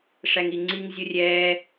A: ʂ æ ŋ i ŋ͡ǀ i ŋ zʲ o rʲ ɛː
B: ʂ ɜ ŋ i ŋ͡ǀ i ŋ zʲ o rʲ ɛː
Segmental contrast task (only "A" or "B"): A